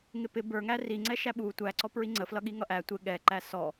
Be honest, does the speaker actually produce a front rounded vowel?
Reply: no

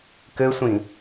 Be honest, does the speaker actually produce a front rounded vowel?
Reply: no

